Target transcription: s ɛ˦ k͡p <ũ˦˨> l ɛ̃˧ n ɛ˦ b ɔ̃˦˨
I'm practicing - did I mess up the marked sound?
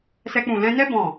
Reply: no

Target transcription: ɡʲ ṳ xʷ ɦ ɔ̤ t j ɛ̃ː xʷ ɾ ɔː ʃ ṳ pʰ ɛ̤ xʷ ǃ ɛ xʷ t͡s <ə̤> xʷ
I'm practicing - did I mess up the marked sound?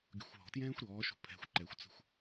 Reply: no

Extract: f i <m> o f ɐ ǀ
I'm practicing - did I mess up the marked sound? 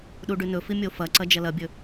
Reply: yes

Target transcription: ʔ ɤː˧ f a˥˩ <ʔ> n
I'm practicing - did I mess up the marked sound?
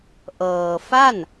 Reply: yes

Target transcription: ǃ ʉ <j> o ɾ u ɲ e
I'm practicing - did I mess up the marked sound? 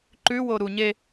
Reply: yes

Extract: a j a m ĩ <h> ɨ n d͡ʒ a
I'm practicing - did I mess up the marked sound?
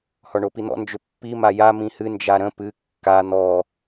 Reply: no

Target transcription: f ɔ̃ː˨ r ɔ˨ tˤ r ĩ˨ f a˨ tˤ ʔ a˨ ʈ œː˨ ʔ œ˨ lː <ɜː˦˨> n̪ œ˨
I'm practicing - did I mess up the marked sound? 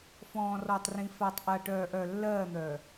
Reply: no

